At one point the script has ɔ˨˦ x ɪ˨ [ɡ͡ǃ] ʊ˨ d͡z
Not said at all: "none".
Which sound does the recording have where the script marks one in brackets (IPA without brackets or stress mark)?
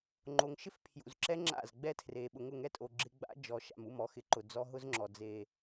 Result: ǃ